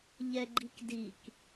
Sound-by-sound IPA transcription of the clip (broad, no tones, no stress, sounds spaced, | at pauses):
ʎ ɛ ɡ͡ǃ i k d i k